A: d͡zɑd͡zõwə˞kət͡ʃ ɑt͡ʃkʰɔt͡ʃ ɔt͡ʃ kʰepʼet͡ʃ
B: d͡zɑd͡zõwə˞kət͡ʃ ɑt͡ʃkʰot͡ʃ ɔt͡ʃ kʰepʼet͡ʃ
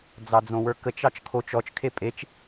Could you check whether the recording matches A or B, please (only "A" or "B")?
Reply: B